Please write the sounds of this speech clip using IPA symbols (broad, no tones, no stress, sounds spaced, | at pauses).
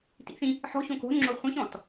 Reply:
t ḭ θ ĩ | ħ ɔ̤ ç õ k o̤ n ŋ͡ǁ o χʷ ĩ ç ɔ̃ t